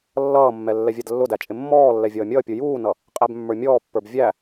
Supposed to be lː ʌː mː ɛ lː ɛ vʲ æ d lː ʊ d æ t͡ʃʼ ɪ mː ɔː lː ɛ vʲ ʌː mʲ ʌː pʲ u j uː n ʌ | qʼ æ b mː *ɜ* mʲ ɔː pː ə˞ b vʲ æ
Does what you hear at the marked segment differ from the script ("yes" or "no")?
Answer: yes